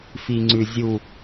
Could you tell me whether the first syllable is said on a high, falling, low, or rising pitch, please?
low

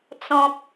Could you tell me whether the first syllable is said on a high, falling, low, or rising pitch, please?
high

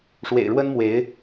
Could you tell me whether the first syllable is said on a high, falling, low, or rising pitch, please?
low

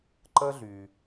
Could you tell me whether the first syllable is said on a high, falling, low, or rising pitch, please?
high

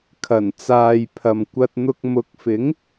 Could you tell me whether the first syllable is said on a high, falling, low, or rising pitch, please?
low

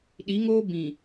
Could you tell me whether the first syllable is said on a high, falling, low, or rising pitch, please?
rising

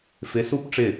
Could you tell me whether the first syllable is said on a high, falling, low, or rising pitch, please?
rising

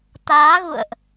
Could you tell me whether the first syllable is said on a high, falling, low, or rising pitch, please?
rising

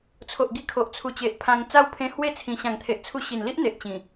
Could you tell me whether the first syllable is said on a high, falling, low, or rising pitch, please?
low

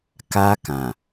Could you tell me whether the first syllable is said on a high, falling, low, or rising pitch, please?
high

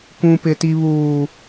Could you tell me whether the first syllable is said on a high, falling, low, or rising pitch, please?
high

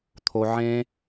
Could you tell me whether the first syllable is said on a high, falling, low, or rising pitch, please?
low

